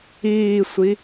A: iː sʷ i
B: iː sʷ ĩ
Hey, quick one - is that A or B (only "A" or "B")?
A